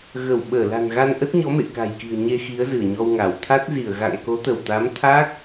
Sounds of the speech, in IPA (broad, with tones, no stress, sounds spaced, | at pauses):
ɣ ə˧˩ w ɓ əː˧˩ l a̤˨˩ n ɣ a˧ n ʔ ə˦˥ t̚ ɲ ɔ˨˦ m ḛ˧˨ k a̤˨˩ j k i̤˨˩ ə̯ ɲ e˧ x i˨˦ ə̯ z ɨ˧˩ ə̯ ɲ ɔ˧ w ŋ a˧˩ w t̪ʰ a˦˥ t̚ z i˧˩ ə̯ ɣ a̰˧˨ ŋ k o˨˦ t̪ ə˧˩ w t̪ a˨˦ m t̪ʰ aː˦˥ k̚